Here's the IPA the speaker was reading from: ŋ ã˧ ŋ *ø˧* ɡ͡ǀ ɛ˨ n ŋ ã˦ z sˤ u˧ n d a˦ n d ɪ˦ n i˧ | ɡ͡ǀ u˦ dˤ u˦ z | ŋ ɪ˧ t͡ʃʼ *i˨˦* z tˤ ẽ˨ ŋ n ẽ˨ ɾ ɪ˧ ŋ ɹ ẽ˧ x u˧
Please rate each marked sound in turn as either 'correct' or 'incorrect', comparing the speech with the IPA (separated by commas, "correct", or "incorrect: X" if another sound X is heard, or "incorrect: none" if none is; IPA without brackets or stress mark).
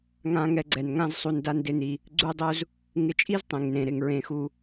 incorrect: ɛ˧, incorrect: i˦